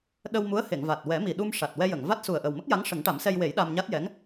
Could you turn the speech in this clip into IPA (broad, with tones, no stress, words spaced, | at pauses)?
ɗə˧wmu˧˥ə̯he˨˩˨ŋva˨˩t̚ wɛ˨˩˦mi˨˩ɗu˧m ʂa˨˩t̚wɛ˧jə˨˩˨ŋva˦˥t̚ su˨˩ə̯ʔə˨˩wmə˦˥k̚ja˧˥ŋ ʂə˨˩˦ŋʈa˨˩˦msɛ˧jwe˨˩˦j ɗa˧mɲa˦˥t̚jɛ˧˥ŋ